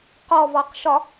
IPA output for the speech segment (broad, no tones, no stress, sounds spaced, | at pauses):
q ɔ v ɔ q ʃ ɒ